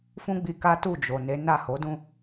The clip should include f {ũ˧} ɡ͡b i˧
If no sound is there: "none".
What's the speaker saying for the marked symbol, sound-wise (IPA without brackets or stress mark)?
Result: ũ˦